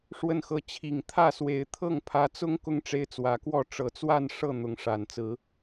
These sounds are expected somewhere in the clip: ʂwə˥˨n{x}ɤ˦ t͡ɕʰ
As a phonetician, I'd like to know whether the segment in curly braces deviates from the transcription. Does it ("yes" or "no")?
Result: no